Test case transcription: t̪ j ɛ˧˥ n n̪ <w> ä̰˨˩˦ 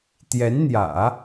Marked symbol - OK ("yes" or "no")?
no